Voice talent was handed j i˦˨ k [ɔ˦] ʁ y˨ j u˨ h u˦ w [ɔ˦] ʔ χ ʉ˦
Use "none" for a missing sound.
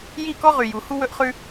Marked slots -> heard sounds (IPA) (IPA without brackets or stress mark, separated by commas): ɔ˦, ɵ˦